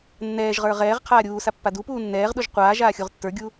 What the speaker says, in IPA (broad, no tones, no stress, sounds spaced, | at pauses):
nː ɛː ʒ ʁ ə˞ ʁ ɛː ʁ qʰ aː ɾʲ uː s a pː a d u p uː nː ɛː ʁ ɗ u ʒ qʷ aː ʒ aː xʲ u ʁ tː ə˞ ɡʲ u